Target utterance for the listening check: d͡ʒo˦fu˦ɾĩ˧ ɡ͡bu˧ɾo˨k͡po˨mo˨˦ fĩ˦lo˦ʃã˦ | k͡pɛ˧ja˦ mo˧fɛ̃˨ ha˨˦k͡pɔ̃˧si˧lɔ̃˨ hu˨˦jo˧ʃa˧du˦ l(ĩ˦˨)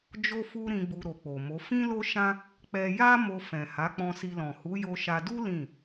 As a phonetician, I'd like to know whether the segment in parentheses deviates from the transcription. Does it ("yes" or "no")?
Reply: no